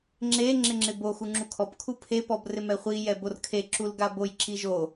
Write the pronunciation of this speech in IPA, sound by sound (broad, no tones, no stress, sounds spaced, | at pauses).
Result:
ŋ͡ǁ e ŋ͡ǁ ɪ ŋ͡ǁ ɪ b o x u ŋ͡ǁ u kʰ ɔ p kʰ u pʰ e p ɔ b r ɪ m ɛ χʷ i j ɛ b o r kʰ e ǁ u l ɡ a b o j ǁ i ʒ o